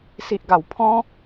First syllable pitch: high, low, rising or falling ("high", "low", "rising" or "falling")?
low